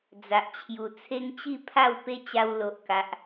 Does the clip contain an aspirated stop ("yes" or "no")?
yes